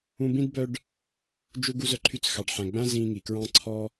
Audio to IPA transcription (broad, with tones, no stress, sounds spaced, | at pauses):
ũ˦ b ĩ˥ d b œ˦ ɖ | d͡ʒ u˦ ɡ u˦ z œ˦ ǃʰ y˦ t͡s x ɑ˩ ɖ ħ æ̃˩ ɡ͡b æ̃˥ z ĩː˦ ŋ i˩ k ɹ ɑ̃˦ ǀʰ ɔ˦